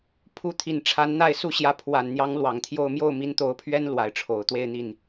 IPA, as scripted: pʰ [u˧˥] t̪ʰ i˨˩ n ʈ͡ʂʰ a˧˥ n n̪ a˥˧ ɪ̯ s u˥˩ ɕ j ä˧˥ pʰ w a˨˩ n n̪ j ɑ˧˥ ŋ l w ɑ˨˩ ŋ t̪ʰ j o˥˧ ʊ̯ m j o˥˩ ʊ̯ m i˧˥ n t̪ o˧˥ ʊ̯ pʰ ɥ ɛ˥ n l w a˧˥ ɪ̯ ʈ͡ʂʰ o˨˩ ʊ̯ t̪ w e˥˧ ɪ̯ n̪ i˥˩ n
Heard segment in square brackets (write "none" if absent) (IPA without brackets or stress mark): u˧˥